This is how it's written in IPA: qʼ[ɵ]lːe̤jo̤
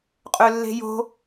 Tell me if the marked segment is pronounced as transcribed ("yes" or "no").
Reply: yes